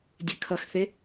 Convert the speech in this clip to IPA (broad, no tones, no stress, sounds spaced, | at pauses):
dʲ e kʰ ʌ x θ e